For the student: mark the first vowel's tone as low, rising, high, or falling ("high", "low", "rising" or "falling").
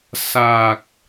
low